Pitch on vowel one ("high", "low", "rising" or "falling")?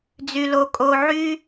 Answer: low